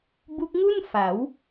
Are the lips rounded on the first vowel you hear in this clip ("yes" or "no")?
yes